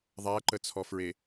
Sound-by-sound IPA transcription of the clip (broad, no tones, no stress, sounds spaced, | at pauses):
ðˤ æ ǃ ə t͡sʰ ɔ f ɹ e